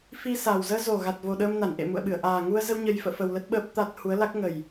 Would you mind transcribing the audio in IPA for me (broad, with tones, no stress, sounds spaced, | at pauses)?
f i˧ s a˨˩ w z əː˧ z o˨˩ ɣ a˨˩ t̚ v o˨˩ ɗ əː˧ m n a˧˩ n ʔ ḛ˧˨ m ṵ˧˨ ə̯ ɓ ɨ˧˩ ə̯ ʔ aː˨˩ ŋ u˧ ə̯ z ə˧ w ɲ ə˨˩ j f ə̰ː˧˨ f ə˧ w l ə˦˥ t̚ ɓ əː˦˥ p̚ t̪ a˦˥ t̚ h u˨˦ ə̯ l a˦˥ k̚ ŋ ə˨˩ j